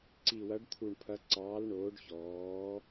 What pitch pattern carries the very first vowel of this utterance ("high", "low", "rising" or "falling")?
low